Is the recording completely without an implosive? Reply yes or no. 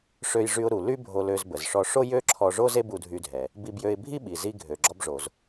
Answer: no